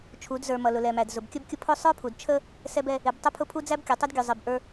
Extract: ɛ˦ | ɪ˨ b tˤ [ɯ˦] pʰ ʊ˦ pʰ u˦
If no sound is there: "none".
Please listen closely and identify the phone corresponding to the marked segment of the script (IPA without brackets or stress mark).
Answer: ʊ˦